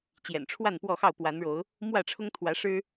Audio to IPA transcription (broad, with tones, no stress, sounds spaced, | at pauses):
t͡ɕ j ɛ̰˨˩ n ʈ͡ʂʰ w a˥˨ n p w ɔ˥˨ x ɑ˥˨ ʊ̯ p w a˨˦ n ɻ o˨˦ ʊ̯ | m w ä˥˨ ʈ͡ʂʰ ʊ˦ ŋ t̪ʰ w ä˨˦ ʂ ɻ̩˦